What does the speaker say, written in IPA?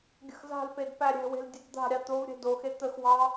ɡʲə̤xza̤lped pæɾʲɛ̤we̤l dʲɐdd̪a̤ɾʲɑ t̪ovɾʲɛ̤ doxe t̪əxwɑ

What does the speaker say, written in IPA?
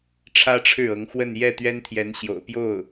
ʈ͡ʂʰä˥ʈ͡ʂʰɻ̩˥˩ɤ˧˥ŋxwə˥˧n jɛ˥˩t̪ɥɛ˥nt̪ʰjɛ˧˥n ɕjo̰˨˩ʊ̯pjo˥˩ʊ̯

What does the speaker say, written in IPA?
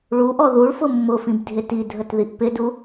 ɭuʔɔ ðuɭfʊ mːʊfĩbdʱɪ tidʱətðiʔ pɪdu

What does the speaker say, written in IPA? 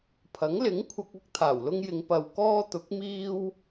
pʰɐ˨˥ŋlɪ˨˥ŋkʷʰɐ˧k̚ ɐ˥k̚t̪ʰaː˨˩wlʊ˥ŋjɪ˨˧ŋ pɐ˨w kɔː˥t̪ʊ˨˥k̚ miː˥w

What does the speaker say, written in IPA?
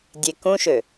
dʲe kũʃø

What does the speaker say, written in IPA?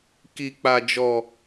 ki˨k͡pa˨d͡ʒɔ˨

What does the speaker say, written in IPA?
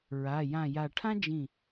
ɹa˩˧˩jã˧˩ja˧˩ ʈʰã˥d͡ʒĩ˧˩

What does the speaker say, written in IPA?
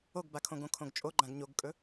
oɡbakʰõ ɡõkʰõɡt͡ʃʼoɡ͡ǃãɡ ɲoɡkʼɵ

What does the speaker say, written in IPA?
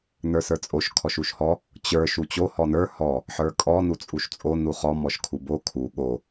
nə˞sə˞t͡sʼoʃ kʰɔʃuʃhɔ | t͡ɕə˞ ʃut͡ɕo hɔnə˞ hɔ | ħə˞kʼɔ nut͡sʼuʃt͡sʼo nuχɔ mɔʃkʰubo kʰu ɠo

